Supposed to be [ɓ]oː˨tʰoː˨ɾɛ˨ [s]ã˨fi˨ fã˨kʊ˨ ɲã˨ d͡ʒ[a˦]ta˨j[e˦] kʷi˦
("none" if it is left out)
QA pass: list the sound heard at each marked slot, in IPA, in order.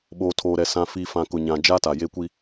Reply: ɓ, s, a˦, e˦

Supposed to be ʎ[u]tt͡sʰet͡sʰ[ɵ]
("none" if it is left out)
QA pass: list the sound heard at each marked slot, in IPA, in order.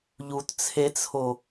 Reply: u, o

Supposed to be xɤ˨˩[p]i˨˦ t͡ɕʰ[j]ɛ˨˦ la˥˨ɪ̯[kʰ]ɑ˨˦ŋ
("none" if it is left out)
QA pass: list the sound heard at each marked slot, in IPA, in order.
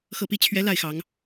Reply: p, ɥ, x

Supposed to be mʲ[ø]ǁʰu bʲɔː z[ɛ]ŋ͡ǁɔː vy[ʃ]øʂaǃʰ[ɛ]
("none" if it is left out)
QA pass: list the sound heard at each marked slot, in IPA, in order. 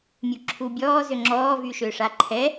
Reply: u, ø, ʃ, ɛ

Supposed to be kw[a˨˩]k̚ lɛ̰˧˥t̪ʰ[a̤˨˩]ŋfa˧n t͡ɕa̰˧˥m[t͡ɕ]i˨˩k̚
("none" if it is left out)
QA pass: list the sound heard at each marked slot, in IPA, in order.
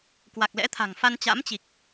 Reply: a˨˩, a̤˨˩, t͡ɕ

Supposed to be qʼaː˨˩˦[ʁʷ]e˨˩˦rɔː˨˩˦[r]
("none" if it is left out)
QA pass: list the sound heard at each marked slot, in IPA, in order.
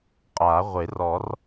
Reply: ʁʷ, r

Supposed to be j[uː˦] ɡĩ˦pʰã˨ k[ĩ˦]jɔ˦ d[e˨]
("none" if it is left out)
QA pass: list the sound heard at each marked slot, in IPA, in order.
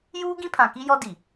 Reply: uː˦, i˦, i˨

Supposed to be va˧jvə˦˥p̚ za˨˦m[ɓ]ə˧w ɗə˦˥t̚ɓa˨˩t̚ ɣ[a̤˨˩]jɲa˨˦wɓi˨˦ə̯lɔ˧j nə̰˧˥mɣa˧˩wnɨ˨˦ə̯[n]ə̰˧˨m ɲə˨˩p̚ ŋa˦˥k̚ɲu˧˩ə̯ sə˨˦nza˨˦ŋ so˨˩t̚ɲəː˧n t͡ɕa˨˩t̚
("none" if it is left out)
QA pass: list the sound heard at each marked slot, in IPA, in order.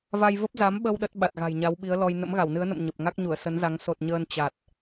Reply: ɓ, a̤˨˩, n

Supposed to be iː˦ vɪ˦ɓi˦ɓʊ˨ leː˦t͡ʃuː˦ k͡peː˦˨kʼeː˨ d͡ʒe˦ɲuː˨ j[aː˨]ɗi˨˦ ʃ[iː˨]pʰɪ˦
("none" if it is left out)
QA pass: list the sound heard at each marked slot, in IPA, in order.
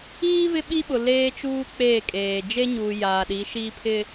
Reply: aː˨, iː˦

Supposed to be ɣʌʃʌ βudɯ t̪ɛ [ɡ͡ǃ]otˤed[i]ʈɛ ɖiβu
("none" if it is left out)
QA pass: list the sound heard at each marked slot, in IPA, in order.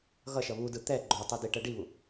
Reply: ɡ͡ǃ, i

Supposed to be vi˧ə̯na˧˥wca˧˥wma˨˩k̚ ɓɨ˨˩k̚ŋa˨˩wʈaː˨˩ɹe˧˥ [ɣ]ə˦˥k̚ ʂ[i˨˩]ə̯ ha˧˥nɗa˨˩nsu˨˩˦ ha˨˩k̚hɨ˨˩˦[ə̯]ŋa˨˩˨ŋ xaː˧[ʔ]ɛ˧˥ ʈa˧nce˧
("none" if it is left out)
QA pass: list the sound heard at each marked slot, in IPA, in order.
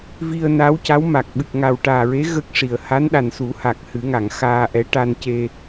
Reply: ɣ, i˨˩, none, ʔ

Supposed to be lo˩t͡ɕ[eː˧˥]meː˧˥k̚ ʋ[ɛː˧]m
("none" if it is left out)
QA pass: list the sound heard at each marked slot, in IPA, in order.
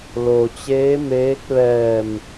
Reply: eː˧˥, ɛː˧˩

